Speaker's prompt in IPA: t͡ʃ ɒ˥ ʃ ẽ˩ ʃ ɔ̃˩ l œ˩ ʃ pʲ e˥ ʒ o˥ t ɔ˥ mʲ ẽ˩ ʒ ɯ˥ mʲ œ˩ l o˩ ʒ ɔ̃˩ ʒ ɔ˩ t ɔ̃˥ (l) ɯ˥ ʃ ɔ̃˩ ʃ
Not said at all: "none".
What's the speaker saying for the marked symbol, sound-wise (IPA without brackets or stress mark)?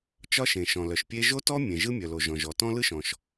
l